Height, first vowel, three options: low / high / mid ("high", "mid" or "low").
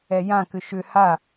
mid